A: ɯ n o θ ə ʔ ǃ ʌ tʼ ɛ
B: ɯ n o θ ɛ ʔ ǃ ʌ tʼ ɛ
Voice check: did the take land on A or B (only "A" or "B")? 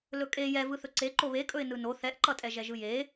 B